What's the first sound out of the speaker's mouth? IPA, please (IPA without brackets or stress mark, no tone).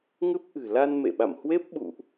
ŋ